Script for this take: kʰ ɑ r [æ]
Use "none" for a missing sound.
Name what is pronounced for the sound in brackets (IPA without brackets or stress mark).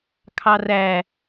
æ